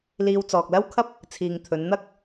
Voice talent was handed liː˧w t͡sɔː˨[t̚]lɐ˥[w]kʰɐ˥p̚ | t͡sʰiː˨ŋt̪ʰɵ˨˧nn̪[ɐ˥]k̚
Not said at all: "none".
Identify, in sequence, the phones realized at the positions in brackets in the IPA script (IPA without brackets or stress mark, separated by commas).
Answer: k̚, w, ɐ˥